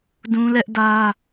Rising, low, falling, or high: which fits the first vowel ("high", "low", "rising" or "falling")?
high